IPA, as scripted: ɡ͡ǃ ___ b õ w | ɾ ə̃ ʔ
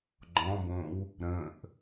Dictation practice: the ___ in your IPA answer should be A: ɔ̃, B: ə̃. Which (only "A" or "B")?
A